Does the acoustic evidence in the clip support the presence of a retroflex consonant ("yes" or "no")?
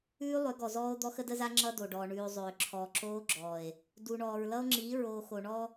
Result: yes